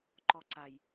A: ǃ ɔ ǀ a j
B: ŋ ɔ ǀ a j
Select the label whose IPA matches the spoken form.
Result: A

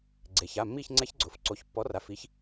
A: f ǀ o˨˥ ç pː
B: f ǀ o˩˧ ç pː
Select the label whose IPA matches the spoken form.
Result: A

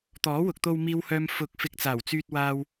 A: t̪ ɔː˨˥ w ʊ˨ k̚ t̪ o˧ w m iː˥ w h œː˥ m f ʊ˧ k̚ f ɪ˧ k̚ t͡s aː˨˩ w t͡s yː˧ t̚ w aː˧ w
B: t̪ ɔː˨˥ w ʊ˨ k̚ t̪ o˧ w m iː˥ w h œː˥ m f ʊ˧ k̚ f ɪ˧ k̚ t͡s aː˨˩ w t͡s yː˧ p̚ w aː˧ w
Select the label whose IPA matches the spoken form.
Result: A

